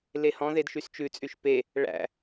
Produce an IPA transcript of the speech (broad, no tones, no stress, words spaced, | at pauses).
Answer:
lehɔ̃ðed ʃyst͡ʃʉt͡sʼyʃ pe | ɭæ̰